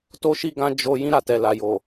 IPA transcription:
t o˧ ʃ i˧ ɡ ã˧ d͡ʒ o˧ j ĩ˦ ɾ a˦˨ t ɛ˨ l a˨ j o˨

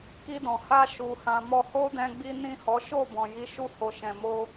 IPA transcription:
k i˧ d ɔ̃˨ h a˧ ʃ u˨ h ã˨ m ɔ˧ h o˦ d ɛ̃˧ ɡ͡b i˦ n ĩ˦˨ h ɔ˨˦ ʃ o˦˨ b ɔ̃˨ j i˨˦ ʃ u˦˨ h o˨ ʃ ɛ̃˨ m o˧

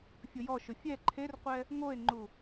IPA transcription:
fʲ ʊ j ɔ ʃ ʊ fʲ ɛ ǃʰ e r qʷ ɛ | ŋ o e̯ ŋ͡ǃ u

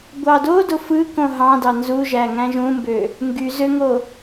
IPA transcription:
ɡʷ ɑ d o d o f ɯ k õ ɦ ɑ̃ d ɑ n z u ʒ æ ŋ æ̃ ʒ ũ m b ø | ŋ ɡ y z ø ŋ o

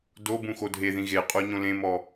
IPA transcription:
d o b ũ x o dʱ e ð ĩ ɣ e qʼ o ɲ õ l ẽ m ɔ

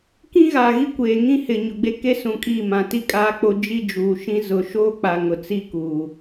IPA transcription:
k ĩ˦ ɣ a˨ ɣ i˦ kʷ eː˨ ŋ ĩ˦ h ɪ˨ ɲ ʊ˨ ɡ͡b e˦ k e˦ s ũ˨ kʼ iː˦˨ m ã˨ t i˦˨ kʼ aː˦ k͡p o˦ d͡ʒ i˦ d͡ʒ uː˨ ʃ ĩ˦ z ʊ˨ ʃ oː˦ k͡p a˨ ŋ ʊ˨ t͡s i˦ k uː˨

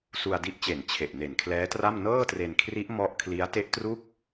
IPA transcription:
s u˧ a̯ d i˦˥ ʔ t͡ɕ e˨˩ n t͡ɕʰ e˨˩ ʔ n e˨˩ n kʰ l ɛː˦˥ t r a˥˩ m n ɤː˥˩ t r e˧ n kʰ r i˦˥ ʔ m ɔ˦˥ ʔ kʰ l i˦˥ a̯ t e˦˥ ʔ t r u˥˩ k̚

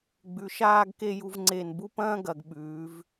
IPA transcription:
ɡ͡b ʉ˩˧ ʃ aː˥˧ ɡ k e˥˧ j u˧ v ŋ͡ǀ e˧˩ n b u˥ p ɐ̃ː˥ ɡ ɐ˩˧ ɡ ɓ ʉː˩˧ v

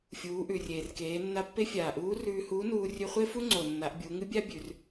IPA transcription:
fʲ uː˩˧ ʔ ʉ˩ rʲ eː˩ r k eː˩˧ nː a˧ pː e˥ fʲ aː˩ ʔ uː˧˥ r ʉː˧ h uː˧˥ n uː˧ rʲ ʉ˧ χʷ e˥ f u˥ ŋ͡ǀ o˩ nː a˩˧ ʔ bʲ u˩˧ ŋ ɨ˧˥ bʲ a˥ bʲ ʉ˩˧ r

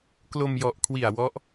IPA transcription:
k l o˧ m j ɔ˨˩ ʔ kʰ w i˨˩ a̯ w ɔ˦˥ ʔ

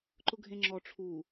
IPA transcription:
ǃ ʊ ɡʱ ẽ ŋ͡ǁ ɔ ʈ͡ʂʰ u

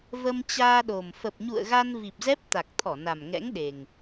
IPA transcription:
v ə˧ m t͡ɕ aː˧ ɗ o˨˩ m f ə˨˩ p̚ ɲ ṵ˧˨ ə̯ ɣ a˧ n v i˨˩ p̚ z ɛ˦˥ p̚ t̪ a˨˩ k̚ t̪ʰ ɔ˧˩ n a˨˩ m ŋ ɛ̰˧˥ ŋ ɗ e˨˩ ŋ

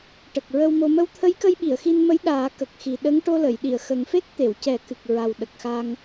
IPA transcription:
ʈ ə˨˩ k̚ ɹ ə˧ w m o˧ m ə˧ w t̪ʰ ə˧˥ j k ə˧ j ɓ i˨˩˨ ə̯ x i˧ n m ə˧˥ j ɗ aː˨˩˦ k ə˨˩ k̚ x i˨˩ ɗ ə˧˥ ŋ ʈ o˧ l ə˨˩˨ j ɗ i˨˩˨ ə̯ x ə˨˩ ŋ f e˦˥ k̚ t̪ e˨˩˨ w c ɛ˨˩˦ k ɨ˨˩ k̚ ɹ a˨˩ w ɗ ə˨˩ k̚ x a˧ ŋ

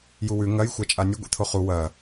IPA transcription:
j u w ʉ ŋ ɐ j xʷ a t͡ʃʼ a nʲ ɵ ɡʷ ḭ t̪ʰ o χ u w ɐ

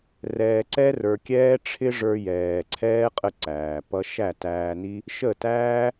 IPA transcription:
r ɛː˨ ǀ ɛ˧ r ə˞˨ kʲ ɛː˧ ʈ͡ʂʰ ɪ˦ ʐ ə˞˧ j ɛː˨ ǀʰ ɛː˦ qʼ ə˦ ǀ æː˨ p ʌ˦ ʃ æ˦˨ t æː˧ n i˦ | ʃ ə˦˨ t æː˦

